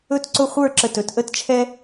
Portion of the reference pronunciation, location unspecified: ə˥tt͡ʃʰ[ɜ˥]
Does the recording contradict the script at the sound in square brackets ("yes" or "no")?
yes